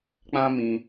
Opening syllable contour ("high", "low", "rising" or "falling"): high